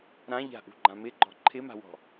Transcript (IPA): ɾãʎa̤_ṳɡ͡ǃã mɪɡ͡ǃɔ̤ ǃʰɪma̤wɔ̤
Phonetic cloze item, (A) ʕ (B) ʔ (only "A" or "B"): B